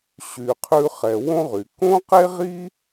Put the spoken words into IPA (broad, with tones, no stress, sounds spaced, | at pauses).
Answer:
ɕ y˩ qʰ ʉ˧ χ ɛ˩ w õ˥ ʁ y˩ k õ˥ q e˥ ʁ i˥